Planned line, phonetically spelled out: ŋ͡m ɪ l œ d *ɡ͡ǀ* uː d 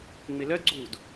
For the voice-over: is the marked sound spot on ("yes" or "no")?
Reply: yes